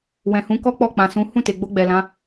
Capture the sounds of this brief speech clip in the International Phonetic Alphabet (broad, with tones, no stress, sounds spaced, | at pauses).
w ɛ̃˨ h ũ˨˦ k ɔ˦ k͡p ɔ˦˨ k͡p ã˨ s ũ˨˦ h ũ˦˨ t e˨ ɡ͡b o˧ ɡ͡b ɛ˨ l ã˨˦